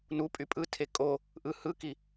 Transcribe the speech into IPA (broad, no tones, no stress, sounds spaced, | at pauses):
n u pʼ y pʼ ɯ tʰ e kʼ o | ʔ ɯ h ɯ k i